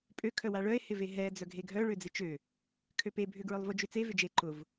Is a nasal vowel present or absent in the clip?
absent